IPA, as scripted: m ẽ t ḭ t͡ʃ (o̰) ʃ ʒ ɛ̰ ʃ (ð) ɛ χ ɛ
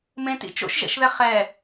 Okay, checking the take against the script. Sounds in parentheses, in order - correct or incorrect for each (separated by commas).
correct, correct